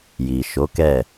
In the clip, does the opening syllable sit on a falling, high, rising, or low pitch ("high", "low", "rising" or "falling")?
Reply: low